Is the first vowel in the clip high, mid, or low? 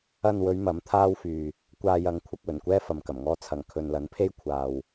low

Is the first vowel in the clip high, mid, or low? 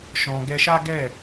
mid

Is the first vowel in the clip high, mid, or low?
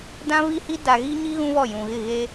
low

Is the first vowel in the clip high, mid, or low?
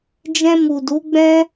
mid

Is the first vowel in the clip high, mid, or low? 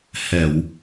mid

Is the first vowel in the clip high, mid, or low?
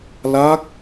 low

